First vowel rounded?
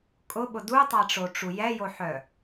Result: yes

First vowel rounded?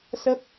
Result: no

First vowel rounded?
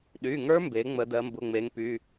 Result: yes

